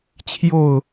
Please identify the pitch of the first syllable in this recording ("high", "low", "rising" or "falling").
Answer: falling